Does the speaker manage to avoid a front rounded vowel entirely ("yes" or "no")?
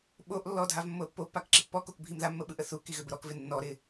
no